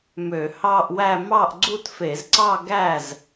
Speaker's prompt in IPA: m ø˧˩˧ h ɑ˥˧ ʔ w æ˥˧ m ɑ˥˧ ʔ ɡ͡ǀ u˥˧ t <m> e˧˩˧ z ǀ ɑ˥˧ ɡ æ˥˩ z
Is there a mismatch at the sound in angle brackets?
yes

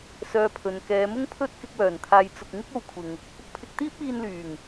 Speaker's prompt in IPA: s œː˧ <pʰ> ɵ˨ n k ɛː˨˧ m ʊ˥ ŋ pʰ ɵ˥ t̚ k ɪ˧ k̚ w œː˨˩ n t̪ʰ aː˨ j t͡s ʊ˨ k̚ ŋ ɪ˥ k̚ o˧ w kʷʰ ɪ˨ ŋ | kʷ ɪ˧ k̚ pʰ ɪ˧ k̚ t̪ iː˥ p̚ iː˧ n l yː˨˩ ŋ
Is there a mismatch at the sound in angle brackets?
no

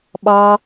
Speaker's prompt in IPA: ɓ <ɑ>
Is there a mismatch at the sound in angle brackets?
no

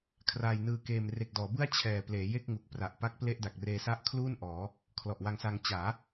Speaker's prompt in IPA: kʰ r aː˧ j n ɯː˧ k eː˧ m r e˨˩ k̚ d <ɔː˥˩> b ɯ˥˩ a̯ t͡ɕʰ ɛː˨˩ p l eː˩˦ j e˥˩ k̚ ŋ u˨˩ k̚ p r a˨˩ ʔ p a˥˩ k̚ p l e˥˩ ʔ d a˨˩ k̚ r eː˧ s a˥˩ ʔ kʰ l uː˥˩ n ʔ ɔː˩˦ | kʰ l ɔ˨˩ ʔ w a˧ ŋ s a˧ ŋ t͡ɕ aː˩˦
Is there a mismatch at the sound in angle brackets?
yes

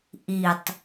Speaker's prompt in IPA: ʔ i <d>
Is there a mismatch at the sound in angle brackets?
yes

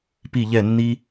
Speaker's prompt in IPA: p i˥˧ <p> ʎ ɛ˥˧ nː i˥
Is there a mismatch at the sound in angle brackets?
yes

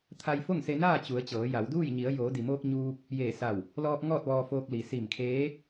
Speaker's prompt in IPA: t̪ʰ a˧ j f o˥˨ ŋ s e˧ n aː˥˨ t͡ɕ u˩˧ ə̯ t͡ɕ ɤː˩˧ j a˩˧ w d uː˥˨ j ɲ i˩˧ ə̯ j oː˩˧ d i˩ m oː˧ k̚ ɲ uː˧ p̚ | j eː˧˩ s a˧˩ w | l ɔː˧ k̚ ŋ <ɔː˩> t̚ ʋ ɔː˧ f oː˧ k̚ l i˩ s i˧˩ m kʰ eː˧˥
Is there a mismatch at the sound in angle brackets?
yes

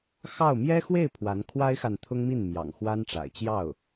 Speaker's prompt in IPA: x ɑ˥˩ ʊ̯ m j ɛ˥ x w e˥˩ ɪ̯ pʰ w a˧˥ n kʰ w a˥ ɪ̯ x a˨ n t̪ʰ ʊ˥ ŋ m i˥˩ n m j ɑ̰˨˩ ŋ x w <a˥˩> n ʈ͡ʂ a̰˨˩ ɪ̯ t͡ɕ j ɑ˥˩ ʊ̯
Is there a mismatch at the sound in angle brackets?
yes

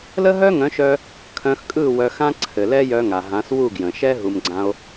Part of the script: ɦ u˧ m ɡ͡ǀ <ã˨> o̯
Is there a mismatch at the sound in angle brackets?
yes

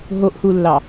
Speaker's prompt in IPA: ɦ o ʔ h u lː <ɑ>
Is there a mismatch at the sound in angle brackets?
no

